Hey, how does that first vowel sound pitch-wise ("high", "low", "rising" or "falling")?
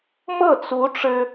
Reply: falling